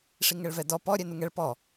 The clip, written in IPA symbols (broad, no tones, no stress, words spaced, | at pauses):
ʂiŋɛɭvɛdɔ pɔ ɾʲɛnuŋɛɭ pɔ